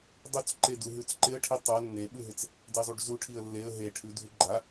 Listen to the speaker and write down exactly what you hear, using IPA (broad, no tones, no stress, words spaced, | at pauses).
dˤut͡sǃe duɦʉt͡sǃɪə̯ʈʰi tˤa nːeɓʉɦɪt͡s | dɛzˤuɖzuʈʰiə̯ lːeə̯ ɦeʈʰʉ dʱʉɡ͡ǃa